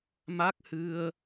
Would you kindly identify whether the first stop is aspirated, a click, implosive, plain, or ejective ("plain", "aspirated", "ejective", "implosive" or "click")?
plain